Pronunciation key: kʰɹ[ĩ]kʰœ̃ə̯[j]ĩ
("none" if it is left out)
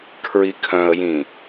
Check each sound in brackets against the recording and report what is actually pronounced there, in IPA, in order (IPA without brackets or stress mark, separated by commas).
i, j